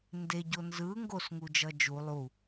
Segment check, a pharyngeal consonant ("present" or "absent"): absent